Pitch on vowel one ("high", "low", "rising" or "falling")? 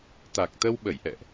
low